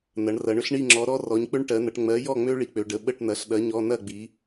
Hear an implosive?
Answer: yes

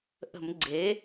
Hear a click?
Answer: yes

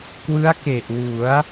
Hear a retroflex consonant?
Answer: no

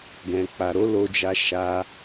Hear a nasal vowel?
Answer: yes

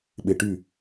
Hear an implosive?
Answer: yes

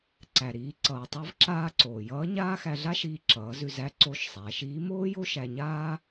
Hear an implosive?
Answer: no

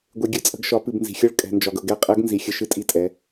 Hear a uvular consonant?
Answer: yes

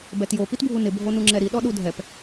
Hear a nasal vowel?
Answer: no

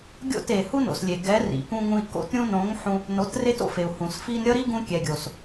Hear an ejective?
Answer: no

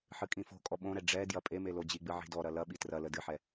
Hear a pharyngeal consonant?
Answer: yes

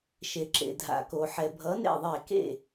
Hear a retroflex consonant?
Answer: no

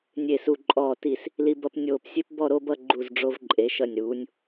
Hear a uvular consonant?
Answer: no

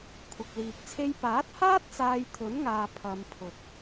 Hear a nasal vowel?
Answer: no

